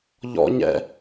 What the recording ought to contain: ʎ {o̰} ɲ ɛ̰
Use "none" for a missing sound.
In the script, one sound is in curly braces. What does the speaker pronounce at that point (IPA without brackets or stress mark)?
ɔ̰